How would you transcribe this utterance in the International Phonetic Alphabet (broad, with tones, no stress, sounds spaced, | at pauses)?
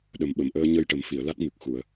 ɗ ə˨˩ m ɓ ə˨˩˨ m ʔ əː˧ ɲ ə˧ j ʈ ə˨˩˦ m f i˨˩˨ ə̯ l a˦˥ t̚ ŋ ɨ˨˩ k̚ x u˨˩˨ ə̯